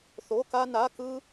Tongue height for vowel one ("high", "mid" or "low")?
mid